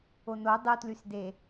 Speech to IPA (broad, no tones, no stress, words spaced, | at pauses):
ono dˤutlysde